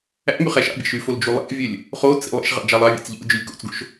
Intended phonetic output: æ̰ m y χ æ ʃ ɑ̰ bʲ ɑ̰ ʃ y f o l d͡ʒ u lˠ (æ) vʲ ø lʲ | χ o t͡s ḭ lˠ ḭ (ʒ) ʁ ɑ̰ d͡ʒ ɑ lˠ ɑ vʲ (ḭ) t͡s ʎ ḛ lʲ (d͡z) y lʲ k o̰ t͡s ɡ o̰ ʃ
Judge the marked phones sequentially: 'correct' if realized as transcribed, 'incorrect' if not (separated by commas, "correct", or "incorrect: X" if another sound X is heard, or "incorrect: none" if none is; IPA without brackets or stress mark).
incorrect: æ̰, incorrect: ʃ, incorrect: ḛ, incorrect: d͡ʒ